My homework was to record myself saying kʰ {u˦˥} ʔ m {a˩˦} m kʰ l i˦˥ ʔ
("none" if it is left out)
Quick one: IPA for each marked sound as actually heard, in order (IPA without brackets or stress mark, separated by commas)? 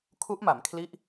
u˦˥, a˩˦